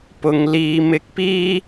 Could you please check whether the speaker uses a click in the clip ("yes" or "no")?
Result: no